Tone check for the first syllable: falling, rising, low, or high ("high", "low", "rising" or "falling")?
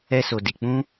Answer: high